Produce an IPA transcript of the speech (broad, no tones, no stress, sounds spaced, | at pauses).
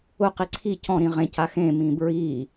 ʊ q i ǀʰ i c ɔ̃ ɾ ĩ ʁ ẽ c a x ẽ m ĩ b ɹ i